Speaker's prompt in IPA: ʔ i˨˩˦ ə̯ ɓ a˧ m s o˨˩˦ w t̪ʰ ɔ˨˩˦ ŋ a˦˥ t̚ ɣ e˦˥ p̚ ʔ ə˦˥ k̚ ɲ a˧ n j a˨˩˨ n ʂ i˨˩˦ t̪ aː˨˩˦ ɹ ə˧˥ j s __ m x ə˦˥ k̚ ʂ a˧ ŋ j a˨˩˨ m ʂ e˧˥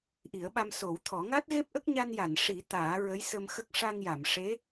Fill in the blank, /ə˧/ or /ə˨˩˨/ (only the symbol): ə˧